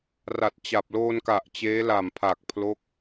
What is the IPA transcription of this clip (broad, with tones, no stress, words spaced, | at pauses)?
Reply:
ra˨˩t̚ t͡ɕa˨˩p̚loː˧nka˨˩ʔ t͡ɕeː˦˥la˨˩mpʰa˨˩k̚ pʰlo˥˩k̚